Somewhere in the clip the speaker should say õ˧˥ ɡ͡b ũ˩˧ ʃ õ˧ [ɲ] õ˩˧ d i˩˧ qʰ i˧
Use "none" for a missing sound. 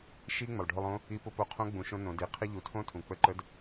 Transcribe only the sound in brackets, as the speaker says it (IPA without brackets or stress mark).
n